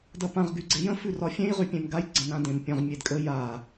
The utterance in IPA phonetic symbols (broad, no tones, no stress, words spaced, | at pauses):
dɐpãʁɡy ɡ͡ǀejə̃fʉrɒ fʲẽjʁypʲẽm ɡaj ɡ͡ǀə̃nãdẽm pʲə̃ʁ mʲedkʼə ja